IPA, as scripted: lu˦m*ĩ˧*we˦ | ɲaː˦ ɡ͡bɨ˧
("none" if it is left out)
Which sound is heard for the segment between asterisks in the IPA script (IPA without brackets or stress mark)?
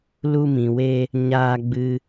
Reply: ĩ˨